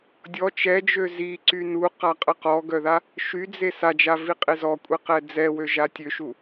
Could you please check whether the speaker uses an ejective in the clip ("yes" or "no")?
yes